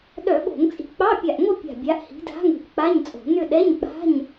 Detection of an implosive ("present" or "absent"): present